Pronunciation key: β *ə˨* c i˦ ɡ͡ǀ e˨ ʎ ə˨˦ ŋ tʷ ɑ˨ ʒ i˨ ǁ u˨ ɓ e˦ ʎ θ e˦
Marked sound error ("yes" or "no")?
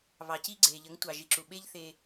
yes